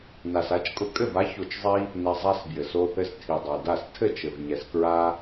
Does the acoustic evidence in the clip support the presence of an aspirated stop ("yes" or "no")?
yes